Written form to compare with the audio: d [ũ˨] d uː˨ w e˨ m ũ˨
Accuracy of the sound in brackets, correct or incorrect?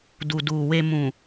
incorrect